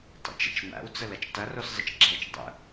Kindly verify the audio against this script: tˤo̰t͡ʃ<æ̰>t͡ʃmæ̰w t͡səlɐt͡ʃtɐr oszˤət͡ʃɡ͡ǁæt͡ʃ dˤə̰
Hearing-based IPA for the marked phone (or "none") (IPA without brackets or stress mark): ə̰